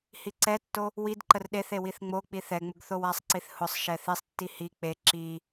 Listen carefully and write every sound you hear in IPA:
h i ǀ ɛ tː o | w i d ǃ ə r ɗ e θ e w i θ ŋ͡m o k͡p i θ ɛ ŋ͡m ʊ ɡ θ o w a sˤ ǀ i θ h ʊ sˤ ʃ ɛ θ i sˤ tː i h i k͡p e ǁ i

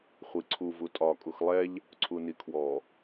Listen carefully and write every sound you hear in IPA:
χʷ i ǀʰ u v u tʼ ɒ kʼ u x lˠ ɛ ʎ | ǀʰ u n i kʰ w ɔ

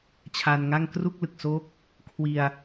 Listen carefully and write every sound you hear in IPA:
t͡ɕʰ a˧ n ŋ a˥˩ ŋ k r u˥˩ k̚ l ɯ˨˩ k̚ s o˦˥ k̚ | kʰ w i˧ a̯

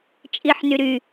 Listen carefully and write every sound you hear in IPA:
t͡ʃʼ i ħ n y ɾ y

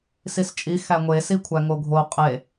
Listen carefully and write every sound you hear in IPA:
s i s t͡ʃʼ i x æ ŋʷ e s i kʷʰ æ ŋ o ɡʱ o qʼ e

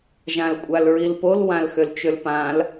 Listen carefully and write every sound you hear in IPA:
ʒ ã l kʷʼ a l ɹ i l p o l w ã l x ø l t͡ʃ ø l p ã l

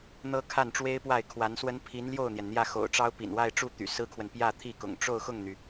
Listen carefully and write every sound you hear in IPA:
n̪ ɤ˥ kʰ a˥˩ n ʈ͡ʂ w e˥ ɪ̯ p w a˥˩ ɪ̯ kʰ w a˧˥ n s w ə˥ n pʰ i˧˥ n l j o˥˩ ʊ̯ n̪ j ɛ˩ n n̪ j ä˥˩ x o̰˨˩ ʊ̯ ʈ͡ʂ ɑ˥ ʊ̯ p ḭ˨˩ n w a˥˧ ɪ̯ ʈ͡ʂ u˥˩ t̪ y̰˨˩ s ɹ̩˥ kʰ w ə˨ n p j ä˥˧ t̪ʰ i˥˩ k ʊ̰˨˩ ŋ ʈ͡ʂ o˥˧ ʊ̯ x ʊ˥˩ ŋ n̪ y˩

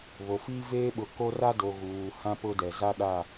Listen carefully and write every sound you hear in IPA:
β o˨ f iː˦ v eː˦ ɓ ʊ˨ k o˦ r a˦ d o˨ ɣ uː˨ h ã˦ p ʊ˦ d ɛ˨ z a˦ ɗ a˦˨

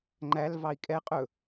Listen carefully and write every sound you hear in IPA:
ŋ͡ǃ æ l v ɑ i̯ kʼ ɛ qʼ ɵ

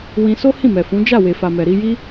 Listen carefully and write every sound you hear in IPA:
w ĩ˧ s o˦ h ĩ˦˨ m ɛ˨ f ũ˨˦ d͡ʒ a˦˨ w e˨ f a˨ m ɛ˨ ɾ i˧ j i˦

